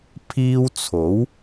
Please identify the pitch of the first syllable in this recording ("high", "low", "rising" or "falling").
high